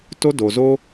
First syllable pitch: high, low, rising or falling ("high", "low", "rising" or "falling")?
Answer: high